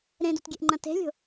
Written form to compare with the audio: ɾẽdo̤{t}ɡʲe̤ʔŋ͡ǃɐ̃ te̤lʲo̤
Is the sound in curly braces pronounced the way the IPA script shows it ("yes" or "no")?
yes